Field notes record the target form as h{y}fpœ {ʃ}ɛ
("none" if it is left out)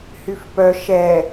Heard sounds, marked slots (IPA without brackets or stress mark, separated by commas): y, ʃ